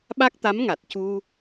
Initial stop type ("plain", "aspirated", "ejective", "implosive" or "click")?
implosive